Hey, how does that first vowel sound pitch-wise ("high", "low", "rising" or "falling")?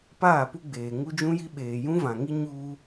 falling